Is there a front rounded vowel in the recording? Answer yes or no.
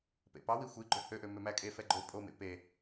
yes